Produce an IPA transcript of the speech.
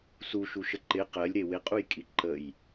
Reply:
s u ʃ u ʃ ə ǃ ɪ q ɜ lʲ ɾ e w ɪ qʼ u j kʼ i ǃ ə j

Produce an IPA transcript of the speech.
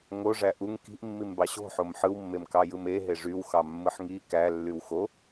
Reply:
ŋ o ʐ æ ʔ u ŋ k i̤ ʔ mː i m b ɑ ɕ o̤ ħ o m ħ ɯ w mː e m k ɑ j ɯ m e ɦ e ʐ y w x ɑ mː ɯ ħ ŋ i k æ lː y w x o

